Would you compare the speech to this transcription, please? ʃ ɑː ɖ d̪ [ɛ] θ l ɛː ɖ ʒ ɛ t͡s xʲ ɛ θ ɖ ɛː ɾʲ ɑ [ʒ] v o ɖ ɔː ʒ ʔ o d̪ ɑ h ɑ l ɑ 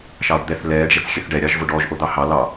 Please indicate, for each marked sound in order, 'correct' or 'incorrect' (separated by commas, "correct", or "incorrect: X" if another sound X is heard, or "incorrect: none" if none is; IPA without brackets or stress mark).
correct, correct